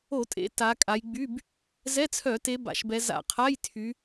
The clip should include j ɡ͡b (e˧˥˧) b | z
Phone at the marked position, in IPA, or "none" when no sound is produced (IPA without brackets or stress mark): y˧˥˧